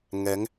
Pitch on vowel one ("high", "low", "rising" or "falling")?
rising